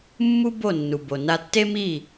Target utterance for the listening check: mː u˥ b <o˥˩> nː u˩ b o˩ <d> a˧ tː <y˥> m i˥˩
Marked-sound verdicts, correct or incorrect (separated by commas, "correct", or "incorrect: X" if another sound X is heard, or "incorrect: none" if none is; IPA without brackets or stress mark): correct, incorrect: n, incorrect: e˥